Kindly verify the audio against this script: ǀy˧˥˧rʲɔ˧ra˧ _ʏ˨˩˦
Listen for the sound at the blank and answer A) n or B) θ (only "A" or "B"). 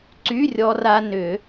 A